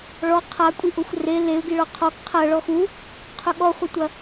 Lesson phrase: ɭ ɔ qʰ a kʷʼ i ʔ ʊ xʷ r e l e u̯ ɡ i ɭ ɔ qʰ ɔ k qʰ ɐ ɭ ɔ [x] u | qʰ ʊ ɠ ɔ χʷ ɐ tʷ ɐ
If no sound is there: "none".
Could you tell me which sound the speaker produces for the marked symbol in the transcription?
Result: x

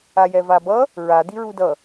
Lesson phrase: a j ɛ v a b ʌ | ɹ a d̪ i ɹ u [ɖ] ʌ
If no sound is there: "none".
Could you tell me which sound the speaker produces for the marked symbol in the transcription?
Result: d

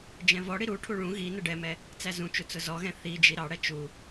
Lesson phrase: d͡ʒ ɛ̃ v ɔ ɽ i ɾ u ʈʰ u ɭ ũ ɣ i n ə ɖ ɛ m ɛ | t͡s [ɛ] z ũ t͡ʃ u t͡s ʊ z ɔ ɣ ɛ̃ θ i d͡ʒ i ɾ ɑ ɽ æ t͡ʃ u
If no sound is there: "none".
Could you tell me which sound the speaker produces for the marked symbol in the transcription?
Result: æ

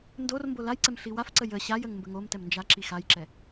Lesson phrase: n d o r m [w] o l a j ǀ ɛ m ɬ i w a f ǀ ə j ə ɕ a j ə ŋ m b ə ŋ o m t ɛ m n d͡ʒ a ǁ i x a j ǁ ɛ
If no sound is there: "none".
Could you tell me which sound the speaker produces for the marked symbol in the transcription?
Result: b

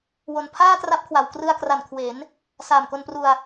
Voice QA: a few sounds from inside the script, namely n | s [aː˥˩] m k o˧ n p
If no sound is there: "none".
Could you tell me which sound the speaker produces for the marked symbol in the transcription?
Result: aː˨˩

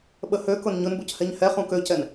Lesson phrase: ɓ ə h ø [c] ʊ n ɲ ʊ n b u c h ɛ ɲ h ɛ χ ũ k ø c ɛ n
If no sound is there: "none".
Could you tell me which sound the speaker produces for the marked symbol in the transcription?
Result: k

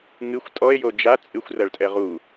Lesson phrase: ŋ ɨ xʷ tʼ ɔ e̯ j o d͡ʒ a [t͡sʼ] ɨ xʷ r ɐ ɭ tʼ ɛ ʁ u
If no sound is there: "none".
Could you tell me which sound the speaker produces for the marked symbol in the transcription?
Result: t͡sʼ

